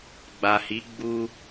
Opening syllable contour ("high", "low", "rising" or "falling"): low